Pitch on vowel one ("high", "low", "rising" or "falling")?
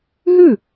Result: falling